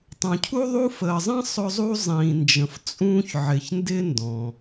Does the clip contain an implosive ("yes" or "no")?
no